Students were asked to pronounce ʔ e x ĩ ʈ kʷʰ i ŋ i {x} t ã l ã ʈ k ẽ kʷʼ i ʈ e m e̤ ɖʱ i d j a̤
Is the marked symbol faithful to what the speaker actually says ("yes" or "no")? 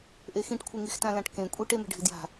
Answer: yes